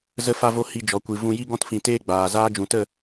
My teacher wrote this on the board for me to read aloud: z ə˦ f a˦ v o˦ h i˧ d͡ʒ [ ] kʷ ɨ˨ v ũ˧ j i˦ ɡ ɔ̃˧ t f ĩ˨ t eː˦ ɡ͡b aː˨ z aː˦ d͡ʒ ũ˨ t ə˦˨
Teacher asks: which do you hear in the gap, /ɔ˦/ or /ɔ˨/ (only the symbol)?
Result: ɔ˨